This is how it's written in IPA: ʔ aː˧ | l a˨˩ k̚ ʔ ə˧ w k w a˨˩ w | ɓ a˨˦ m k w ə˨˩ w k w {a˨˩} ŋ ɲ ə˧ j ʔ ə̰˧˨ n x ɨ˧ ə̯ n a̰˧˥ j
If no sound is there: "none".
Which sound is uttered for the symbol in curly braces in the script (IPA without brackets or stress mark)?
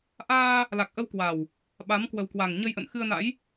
a˨˩